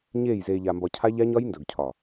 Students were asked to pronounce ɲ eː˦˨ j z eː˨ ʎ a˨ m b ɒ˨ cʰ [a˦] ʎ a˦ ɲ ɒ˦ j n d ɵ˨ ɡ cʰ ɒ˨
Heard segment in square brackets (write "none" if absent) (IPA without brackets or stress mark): a˦